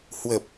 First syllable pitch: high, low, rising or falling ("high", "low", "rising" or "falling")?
low